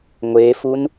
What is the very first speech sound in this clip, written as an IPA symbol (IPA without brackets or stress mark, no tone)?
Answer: ŋʷ